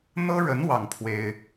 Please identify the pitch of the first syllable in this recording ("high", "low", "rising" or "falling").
high